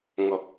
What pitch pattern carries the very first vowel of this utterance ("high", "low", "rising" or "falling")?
low